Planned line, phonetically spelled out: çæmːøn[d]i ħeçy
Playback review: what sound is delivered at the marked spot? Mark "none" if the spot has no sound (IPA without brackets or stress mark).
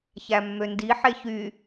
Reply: d